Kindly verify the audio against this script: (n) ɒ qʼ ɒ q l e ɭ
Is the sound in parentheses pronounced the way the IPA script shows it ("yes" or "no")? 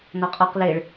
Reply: yes